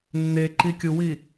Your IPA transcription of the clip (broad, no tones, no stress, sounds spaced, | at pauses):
nː e ǃ i kʲ u w i